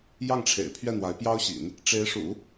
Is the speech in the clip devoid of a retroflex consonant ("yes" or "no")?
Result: no